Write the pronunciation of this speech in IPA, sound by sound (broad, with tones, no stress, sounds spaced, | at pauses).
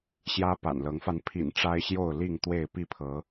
ɕ j ä˦ p a̰˨˩ n l ɤ˨˦ ŋ f a˧ n pʰ ḭ˨˩ n ʈ͡ʂ a˦ ɪ̯ ɕ j o˥˨ ʊ̯ l i˥˨ ŋ t̪ w e˥˨ ɪ̯ p i˥˨ pʰ ɤ˨˦